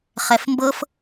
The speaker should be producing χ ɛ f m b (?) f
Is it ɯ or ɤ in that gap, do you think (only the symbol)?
ɤ